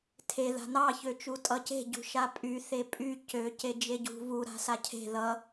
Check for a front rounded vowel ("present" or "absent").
present